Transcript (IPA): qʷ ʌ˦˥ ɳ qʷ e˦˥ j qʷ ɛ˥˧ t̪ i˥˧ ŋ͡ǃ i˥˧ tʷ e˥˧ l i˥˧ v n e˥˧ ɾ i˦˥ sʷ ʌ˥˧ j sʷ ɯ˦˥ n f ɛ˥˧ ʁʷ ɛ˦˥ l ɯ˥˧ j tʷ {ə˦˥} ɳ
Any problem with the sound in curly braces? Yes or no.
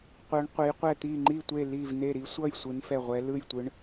yes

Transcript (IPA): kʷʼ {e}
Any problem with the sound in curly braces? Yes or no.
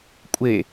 no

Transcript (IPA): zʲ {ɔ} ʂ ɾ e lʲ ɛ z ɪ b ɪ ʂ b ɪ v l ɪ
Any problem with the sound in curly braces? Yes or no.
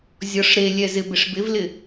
no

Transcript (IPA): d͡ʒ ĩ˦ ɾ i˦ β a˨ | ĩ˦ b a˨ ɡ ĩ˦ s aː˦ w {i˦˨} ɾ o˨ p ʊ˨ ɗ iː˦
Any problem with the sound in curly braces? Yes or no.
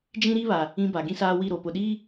no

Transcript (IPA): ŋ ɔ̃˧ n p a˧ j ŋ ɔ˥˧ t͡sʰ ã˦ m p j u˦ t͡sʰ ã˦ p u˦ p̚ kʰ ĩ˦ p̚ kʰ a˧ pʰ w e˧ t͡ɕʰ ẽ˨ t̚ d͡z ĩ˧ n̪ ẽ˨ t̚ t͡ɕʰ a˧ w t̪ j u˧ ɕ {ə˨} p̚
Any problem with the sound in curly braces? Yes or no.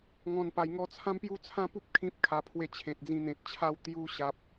yes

